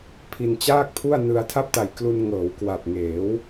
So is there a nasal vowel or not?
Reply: no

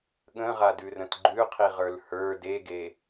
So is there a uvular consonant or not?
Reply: yes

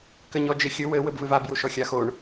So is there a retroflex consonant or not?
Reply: yes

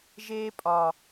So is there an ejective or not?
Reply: yes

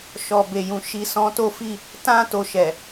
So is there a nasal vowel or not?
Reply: yes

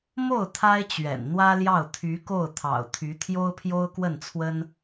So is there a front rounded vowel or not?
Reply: yes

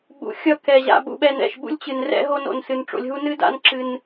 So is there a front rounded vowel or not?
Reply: no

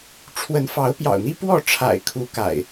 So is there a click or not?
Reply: no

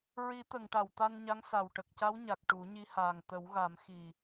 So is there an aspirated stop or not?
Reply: no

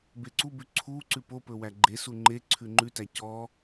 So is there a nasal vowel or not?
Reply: no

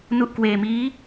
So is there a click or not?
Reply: no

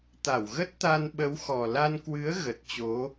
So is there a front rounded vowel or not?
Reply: no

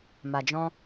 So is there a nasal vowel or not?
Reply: yes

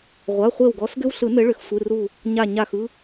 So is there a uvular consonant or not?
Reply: yes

